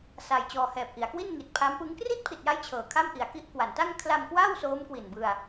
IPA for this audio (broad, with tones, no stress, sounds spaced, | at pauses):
s a˧ j t͡ɕ ɔː˧ h ɛː˨˩ p̚ ʔ i˩˦ a̯ k w i˥˩ n ŋ i˨˩ t̚ pʰ a˦˥ m p ɯ˦˥ ŋ k r i˥˩ t̚ pʰ i˨˩ t̚ j a˦˥ j t͡ɕʰ ɤː˨˩ kʰ a˥˩ m ʔ i˨˩ a̯ k i˦˥ ʔ k w a˩˦ n t a˥˩ ŋ kʰ l a˧ m k w a˥˩ w s oː˦˥ m k w i˨˩ n b ɯ˧ a̯